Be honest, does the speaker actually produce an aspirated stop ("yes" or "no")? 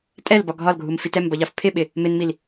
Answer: yes